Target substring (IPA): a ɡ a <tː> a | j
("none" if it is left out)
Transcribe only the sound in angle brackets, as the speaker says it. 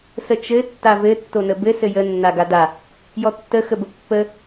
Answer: d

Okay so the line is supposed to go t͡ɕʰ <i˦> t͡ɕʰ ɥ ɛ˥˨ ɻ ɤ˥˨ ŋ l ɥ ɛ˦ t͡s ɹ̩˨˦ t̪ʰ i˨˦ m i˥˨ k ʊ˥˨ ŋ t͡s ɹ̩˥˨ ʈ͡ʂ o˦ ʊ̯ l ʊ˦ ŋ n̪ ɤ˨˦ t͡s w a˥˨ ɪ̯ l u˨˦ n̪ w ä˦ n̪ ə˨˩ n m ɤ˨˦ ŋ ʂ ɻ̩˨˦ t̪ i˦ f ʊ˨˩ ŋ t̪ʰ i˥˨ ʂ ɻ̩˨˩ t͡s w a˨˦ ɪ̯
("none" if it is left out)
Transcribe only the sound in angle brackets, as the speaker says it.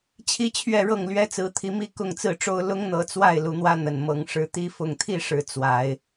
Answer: i˦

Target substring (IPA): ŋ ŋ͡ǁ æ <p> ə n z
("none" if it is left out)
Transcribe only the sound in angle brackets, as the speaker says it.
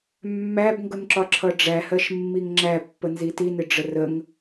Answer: pː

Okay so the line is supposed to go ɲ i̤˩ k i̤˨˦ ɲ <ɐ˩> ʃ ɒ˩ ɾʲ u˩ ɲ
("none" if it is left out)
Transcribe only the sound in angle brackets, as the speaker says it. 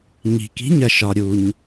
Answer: ɐ˩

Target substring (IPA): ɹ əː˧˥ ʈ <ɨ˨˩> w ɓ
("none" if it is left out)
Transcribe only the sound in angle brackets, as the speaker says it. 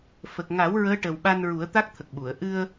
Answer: ə˨˩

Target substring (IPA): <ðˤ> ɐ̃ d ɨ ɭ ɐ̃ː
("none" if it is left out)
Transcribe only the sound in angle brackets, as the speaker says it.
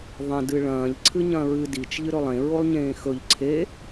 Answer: ðˤ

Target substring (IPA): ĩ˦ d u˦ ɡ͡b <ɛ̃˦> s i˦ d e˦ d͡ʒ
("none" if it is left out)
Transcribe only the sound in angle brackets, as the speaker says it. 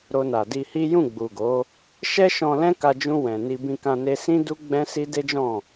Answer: ɛ̃˦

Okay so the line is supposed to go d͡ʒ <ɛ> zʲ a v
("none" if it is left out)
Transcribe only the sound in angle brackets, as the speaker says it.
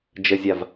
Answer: ə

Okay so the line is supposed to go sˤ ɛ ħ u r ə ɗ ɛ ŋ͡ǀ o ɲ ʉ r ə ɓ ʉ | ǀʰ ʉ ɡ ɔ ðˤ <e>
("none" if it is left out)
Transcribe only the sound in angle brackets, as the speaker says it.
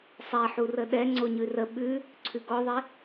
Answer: e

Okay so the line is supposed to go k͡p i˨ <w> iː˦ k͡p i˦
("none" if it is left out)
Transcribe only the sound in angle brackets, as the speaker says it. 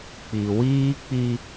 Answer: w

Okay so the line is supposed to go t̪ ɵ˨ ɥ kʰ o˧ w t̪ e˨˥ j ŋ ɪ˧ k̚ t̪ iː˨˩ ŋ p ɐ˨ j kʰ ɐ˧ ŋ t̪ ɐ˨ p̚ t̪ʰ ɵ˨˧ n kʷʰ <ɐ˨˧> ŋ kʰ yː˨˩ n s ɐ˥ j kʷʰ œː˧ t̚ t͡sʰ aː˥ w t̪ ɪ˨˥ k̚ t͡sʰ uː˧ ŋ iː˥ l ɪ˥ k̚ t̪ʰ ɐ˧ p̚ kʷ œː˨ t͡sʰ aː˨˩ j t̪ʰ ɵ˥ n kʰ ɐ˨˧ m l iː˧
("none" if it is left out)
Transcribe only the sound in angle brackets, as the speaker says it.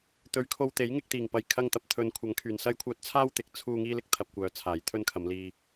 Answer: ɐ˨˧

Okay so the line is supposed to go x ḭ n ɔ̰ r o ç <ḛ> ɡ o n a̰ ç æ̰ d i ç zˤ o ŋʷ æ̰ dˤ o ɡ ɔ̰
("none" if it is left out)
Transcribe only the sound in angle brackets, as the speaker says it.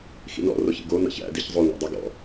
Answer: ḭ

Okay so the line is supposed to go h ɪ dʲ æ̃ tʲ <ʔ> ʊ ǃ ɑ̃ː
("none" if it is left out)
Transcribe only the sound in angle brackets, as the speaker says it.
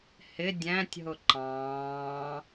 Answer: ɦ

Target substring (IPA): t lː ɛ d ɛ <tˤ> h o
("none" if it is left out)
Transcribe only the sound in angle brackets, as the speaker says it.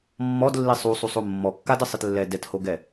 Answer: t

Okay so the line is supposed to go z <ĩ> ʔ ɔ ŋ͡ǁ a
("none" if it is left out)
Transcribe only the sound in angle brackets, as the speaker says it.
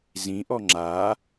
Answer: ĩ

